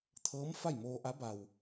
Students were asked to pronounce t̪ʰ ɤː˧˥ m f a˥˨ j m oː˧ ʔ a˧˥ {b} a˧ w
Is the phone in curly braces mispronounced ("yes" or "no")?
no